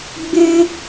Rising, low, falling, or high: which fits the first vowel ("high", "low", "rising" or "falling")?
high